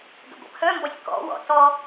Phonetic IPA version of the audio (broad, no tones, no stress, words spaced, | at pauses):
ɡə̰ɡʷə̰pʰœmbɔsʲ kɔ̰wɔ̰ tɔ